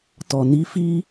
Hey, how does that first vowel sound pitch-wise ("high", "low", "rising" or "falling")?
low